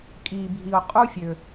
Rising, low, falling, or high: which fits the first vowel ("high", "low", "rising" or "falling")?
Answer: low